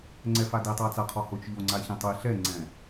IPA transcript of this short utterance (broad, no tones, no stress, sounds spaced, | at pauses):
ŋ͡ǀ ɛ f a d i tˤ a t͡s a qʰ ɔ h ʊ t͡ʃ ʎ o ŋ͡ǀ a ç ĩ tˤ e ɬ ɛ ŋ͡ǀ ɛ̃